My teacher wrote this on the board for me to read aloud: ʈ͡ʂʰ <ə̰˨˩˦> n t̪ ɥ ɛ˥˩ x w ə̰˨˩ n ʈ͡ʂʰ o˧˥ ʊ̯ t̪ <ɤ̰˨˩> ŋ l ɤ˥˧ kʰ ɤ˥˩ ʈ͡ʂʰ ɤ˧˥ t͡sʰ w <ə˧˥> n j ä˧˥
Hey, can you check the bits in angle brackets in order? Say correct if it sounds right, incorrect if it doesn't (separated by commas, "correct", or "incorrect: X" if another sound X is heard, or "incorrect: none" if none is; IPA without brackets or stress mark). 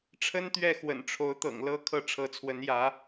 incorrect: ə˥, correct, correct